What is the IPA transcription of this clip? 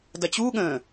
d ɐ t͡ɕ u ɠ ə̃

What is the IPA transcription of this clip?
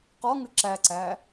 q ɔ ŋ ɨ ǁ æ ǀ æ

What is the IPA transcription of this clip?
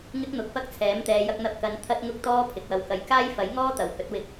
ŋ ɪ˥ k̚ n̪ ʊ˨˥ k̚ f ɐ˥ k̚ t͡sʰ ɛː˨˥ m t̪ ɛː˨˧ j ɐ˧ k̚ n̪ ɐ˧ p̚ k ɐ˨˧ n t̪ʰ ɐ˥ t̚ ŋ ʊ˥ k̚ t̪ ɔː˥ pʰ ɪ˨ k̚ w ɐ˧ w k ɐ˨ j k aː˥ j f ɐ˨˥ j ŋ ɔː˥ t̪ ɐ˨˩ w h ɵ˨˥ t̚ w ɪ˨˥ k̚

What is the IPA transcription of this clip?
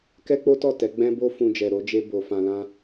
k ɛ˦ k͡p o˦ t ɔ˦˨ t ɛ˨˦ ɡ͡b ɛ̃˦ b o˦ f ũ˧ d͡ʒ ɛ˨ ɾ o˨˦ d͡ʒ e˧ b o˨ f ã˨ l ã˧

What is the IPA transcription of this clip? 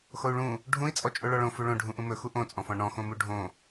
x o u̯ ɭ ũ | ɖʱ ũ i̯ t͡sʼ ɔ t͡ʃʼ o ɭ ɔ ɭ õ f u ɭ õ ɖʱ ũ ʔ ũ m ɵ x u ʔ õ t͡sʼ ɔ̃ f ɔ̃ ɳ ɔ̃ x õ m u ɖʱ õ

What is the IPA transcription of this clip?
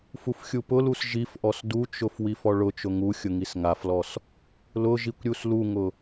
f u f xʲ u p ʊ l u s ʒ i f ʔ ɔ s d u t͡ʃ ʊ f w i f ɔ ɭ ʊ t͡ʃ ʊ ŋ u xʲ ʊ ŋ i s ŋ a f l ɔ s | l ʊ ʒ i kʷ ɾʲ u s l u ŋ ʊ

